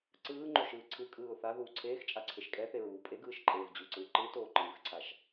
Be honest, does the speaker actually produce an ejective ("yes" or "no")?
yes